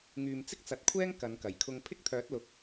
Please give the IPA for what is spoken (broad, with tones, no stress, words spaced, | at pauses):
ŋyː˨mt͡sɪ˥k̚t͡sɐ˨˥t̚kʷʰɛː˥ŋ kɐ˨˧nkɐ˨˩jkʰʊ˧ŋ pʰɪ˥k̚t̪ʰœː˨˥t̚lʊ˨k̚